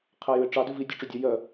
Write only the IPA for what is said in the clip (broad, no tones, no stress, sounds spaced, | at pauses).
qʰ ɛ j ʉ ɪ̯ ʈ͡ʂ ɑ d ʉ v i dʲ ø ʈ͡ʂ ø dʲ ø j œ